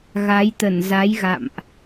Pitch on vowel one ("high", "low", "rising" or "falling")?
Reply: rising